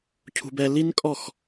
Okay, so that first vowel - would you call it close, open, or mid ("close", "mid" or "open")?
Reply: close